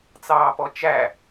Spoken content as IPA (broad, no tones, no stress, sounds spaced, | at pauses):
t͡s ɑː p ɔ t͡ʃ æ